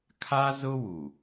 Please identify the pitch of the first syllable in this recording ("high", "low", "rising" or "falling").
high